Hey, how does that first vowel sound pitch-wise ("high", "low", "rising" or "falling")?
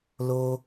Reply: high